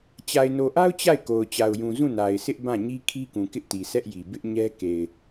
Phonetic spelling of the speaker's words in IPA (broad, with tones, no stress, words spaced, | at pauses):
t͡ɕa˨ɪ̯no˨ʔa˦ʊ̯ t͡ɕa˦˨ɪ̯ko˨ʊ̯ t͡ɕa˨ʊ̯jũ˨ zũ˦˨na˨ɪ̯sʰɪ˦ʔ bã˦˨ ɲi˦kʰi˦kũ˨ kɪ˦ʔti˨ sʰɛ˦ʔji˨ bɪ˦ʔɲɛ˦ ke˨ɪ̯